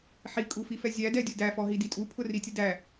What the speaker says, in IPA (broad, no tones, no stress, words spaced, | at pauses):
ħikʼufifɛ zʲædɛdʲʊ dæfɔɦidi tʼupʰʊritʲʊ dæ